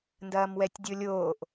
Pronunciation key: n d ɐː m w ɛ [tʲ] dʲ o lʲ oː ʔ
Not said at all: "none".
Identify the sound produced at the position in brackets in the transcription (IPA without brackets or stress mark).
tʲ